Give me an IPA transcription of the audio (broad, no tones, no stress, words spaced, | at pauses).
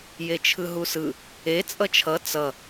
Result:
jet͡ʃʰɯɦusɯ | e t͡sʼʌt͡ʃʰʌ t͡sʌ